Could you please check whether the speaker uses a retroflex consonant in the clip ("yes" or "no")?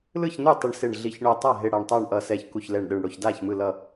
yes